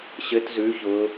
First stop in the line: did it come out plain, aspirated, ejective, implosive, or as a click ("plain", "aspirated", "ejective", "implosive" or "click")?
plain